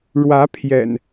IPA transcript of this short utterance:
ɻwä˨˦pʰjɛ̰˨˩n

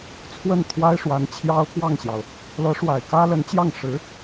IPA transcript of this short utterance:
t͡sʰwə˥˩nt̪ʰwa˥ɪ̯ ʂwa˧˥nt͡ɕʰjɑ˥ʊ̯kwɑ˥˩ŋɕjɑ˩ʊ̯ | lɤ˧˥ʂwa˨˩ɪ̯ kä˥lə˧˥nt͡ɕjɑ˥˩ŋ ʂɻ̩˧˥

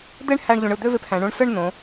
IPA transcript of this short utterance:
d̪e˥ɳhæ˧ɳ ʎũ˩˧ɳɯ˧˩d̪ø˥˧ve˧p hæ̃˩˧ɳũ˧ɳ sɯ˥˧ɳnõ˩˧

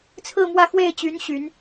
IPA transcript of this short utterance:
t͡sʰɹ̩˥˧mwä˥˧ xwe˥˩ɪ̯t͡ɕy˧˥n ɕy˧˥n

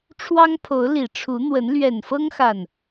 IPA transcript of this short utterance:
ʈ͡ʂʰwɑ˦ŋpʰo˨˦ʊ̯ li˨˩ʈ͡ʂʰu˨˦n̪wə˨˦n lɥɛ˨˩nfɤ˦ŋ xa˨˩n

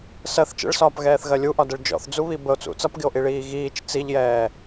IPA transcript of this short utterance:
sɜθ t͡ʃə̰ɭsɒːpɣɛːθɣɜ lʲuʔɒdəɭ d͡ʒɔ̰θd͡zuβi bəo̯t͡sṵ t͡sʌpɡɪo̯ʔiɭiː ɣiːt͡ʃ t͡siʎjɛː

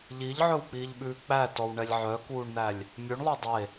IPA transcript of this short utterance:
ʎiʎʕɵwk͡piːʎɓʉː k͡pætɔwɳɛlʲ ʕœkuːɳn̪ælʲ | mʲʉɳlˠo dˤe

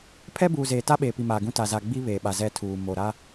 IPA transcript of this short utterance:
pʰɛ˦buː˨ zeː˨ta˦ɓeː˨pi˨ maː˨ɡũ˦ta˨ za˨ɡ͡bi˦ βeː˨ɓa˨ zɛ˦tʰuː˨ mo˨ɾa˦

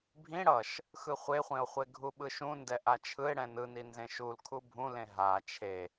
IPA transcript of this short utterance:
bʱĩ ɽʌʃ | xɯχʷeχʷẽo̯χʷe ɡʱuɓɯʃũ ndɛʔat͡ʃʰɯe̯ ɽɛ̃nɯninzẽ ʃulkʰu bʱũlẽ ɦa t͡ʃʰe

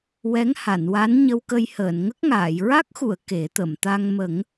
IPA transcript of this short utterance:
wɛ˧˥ŋha˨˩˨nwa˧˥n ɲə˧wkə˧jhəː˨˩˨n ŋə˦˥k̚ŋaː˨˩˨j ɹa˦˥k̚xu˨˩˨ə̯ ke˨˩˦t̪ə˨˩˨m t̪a˧ŋ mə˨˩˦ŋ

